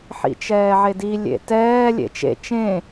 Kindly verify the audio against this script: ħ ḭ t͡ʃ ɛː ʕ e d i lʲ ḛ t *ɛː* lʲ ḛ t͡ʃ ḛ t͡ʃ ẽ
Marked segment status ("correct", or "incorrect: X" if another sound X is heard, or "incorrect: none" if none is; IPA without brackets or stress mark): correct